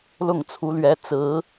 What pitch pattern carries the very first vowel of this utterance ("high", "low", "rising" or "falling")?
falling